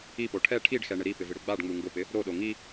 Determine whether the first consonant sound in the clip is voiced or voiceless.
voiceless